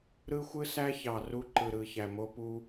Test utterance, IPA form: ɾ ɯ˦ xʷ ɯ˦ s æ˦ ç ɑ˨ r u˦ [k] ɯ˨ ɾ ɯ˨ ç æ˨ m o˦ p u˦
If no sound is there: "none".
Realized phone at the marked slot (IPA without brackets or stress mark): ǃ